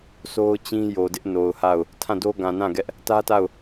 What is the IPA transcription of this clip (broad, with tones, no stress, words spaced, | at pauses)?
so˦ʊ̯t͡ɕĩ˦ jo˨dɪ˦ʔno˨ʊ̯ha˦˨ʊ̯ | tʰã˦˨do˦ ɡã˨nã˦˨ɡɛ˦ʔ | tä˦ta˦˨ʊ̯